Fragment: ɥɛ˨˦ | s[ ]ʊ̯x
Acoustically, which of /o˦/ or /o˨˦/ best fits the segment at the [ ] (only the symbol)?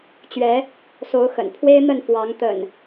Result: o˨˦